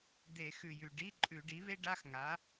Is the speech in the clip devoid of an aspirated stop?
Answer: yes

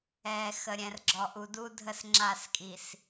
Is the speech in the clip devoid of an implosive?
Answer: yes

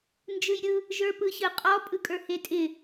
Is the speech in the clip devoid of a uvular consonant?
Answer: no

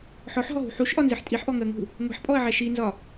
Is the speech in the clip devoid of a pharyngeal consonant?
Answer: no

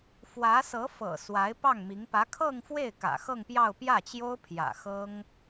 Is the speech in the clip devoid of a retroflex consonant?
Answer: yes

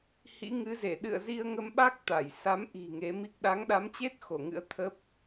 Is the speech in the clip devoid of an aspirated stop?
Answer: no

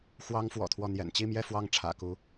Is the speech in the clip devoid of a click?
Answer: yes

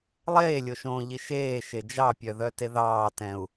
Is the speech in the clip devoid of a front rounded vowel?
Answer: no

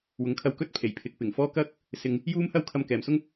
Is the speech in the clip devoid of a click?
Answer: yes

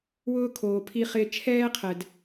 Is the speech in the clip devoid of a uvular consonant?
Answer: no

